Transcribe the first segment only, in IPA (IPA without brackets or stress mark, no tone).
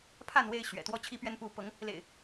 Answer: pʰ